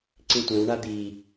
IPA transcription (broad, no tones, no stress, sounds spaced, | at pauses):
ǀ ĩ tʷ ɛ̃ w ɳ a d̪ i